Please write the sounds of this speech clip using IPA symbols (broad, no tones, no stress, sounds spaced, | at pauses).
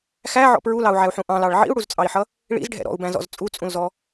x æ ʕ ɔ̰ p ɹ u l ɑ u̯ ʕ æ u̯ ħ ũ ʔ ɑ̃ l ɑ ɭ ʕ ḭ u̯ ɽ u z t͡sʼ ɑ i̯ ħ ʌ | ɭ ḭ z ɖʱ ɛ̰ ɾ ɔ̰ u̯ b æ̃ z ɔ̰ z t͡sʼ u t͡sʼ ũ l z ɔ